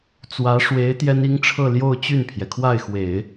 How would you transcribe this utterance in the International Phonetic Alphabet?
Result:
t͡s w ä˧˥ ʂ w e˧˥ ɪ̯ t̪ j ɛ˥ n i˥ ŋ ʈ͡ʂʰ ɤ˥˧ l j o˥˧ ʊ̯ t͡ɕ y˥˩ n pʰ j ɛ˩ kʰ w a˥˩ ɪ̯ x w e˨˩˦ ɪ̯

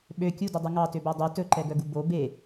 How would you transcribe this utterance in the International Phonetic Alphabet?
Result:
ɓ ø kʲ u d y dˤ u ŋ ɑ t ø b æ dˤ y t ɵ ǃ ɛ ɡ œ ɡ u b o b e

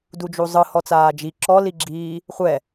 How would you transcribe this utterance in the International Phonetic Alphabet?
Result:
d u d͡ʒ u zˤ ɯ h ɔ t͡s aː d͡ʒ i ǁ ɔ l i ɡ͡ǁ iː | χʷ ɛ

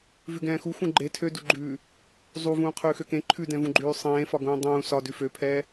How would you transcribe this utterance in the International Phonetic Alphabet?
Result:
v ʉ ɡ ɛ̃ː x u x ũ ɡ͡ǃ e tʰ ø d u ɡ͡ǃ ʉː | zˤ u v ũː qʰ ʉː x ø k ẽ ǃʰ ʉ d ɛ̃ v ũ ɡ͡ǃ ʉː sˤ ẽː f ɒ ɡ ũː dˤ ũː s ɒ d ʉ f ø pʰ ɛː

